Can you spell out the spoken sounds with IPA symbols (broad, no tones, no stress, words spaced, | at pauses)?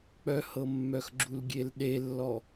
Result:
k͡pœhɤmːœxɡ͡ǁul ɡʲelɗelːɔ